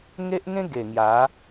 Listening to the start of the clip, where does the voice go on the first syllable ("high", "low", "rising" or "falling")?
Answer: high